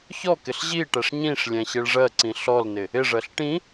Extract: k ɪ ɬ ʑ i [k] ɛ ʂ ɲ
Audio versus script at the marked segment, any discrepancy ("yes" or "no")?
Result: yes